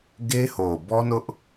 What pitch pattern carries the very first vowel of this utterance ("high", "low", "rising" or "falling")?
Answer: high